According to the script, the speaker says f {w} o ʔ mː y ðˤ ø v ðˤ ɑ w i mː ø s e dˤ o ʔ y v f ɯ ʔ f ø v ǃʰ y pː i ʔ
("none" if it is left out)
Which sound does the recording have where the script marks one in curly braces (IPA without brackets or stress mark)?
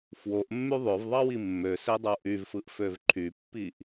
w